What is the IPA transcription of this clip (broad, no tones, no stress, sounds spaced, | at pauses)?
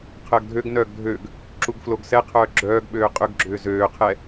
qʰ əː ɡ dʱ ø ɡ n œː ɡ dʱ ø ɡ | ǁ u ɡ f l o ɡ s ɛ qʰ œː ɡ͡ǁ œː ɡ ɓ øː qʼ ʏ ɡ ɡ͡ǁ ʏː z øː qʰ ɛ